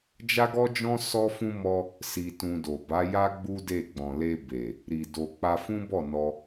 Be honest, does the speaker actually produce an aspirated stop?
no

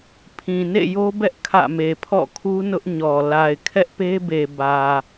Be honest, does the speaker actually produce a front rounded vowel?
no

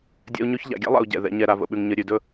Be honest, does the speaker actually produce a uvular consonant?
no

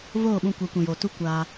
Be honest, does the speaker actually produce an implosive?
yes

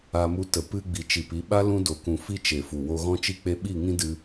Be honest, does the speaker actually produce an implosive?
yes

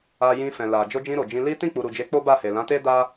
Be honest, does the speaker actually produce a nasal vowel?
yes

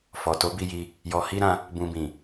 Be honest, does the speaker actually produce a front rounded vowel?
no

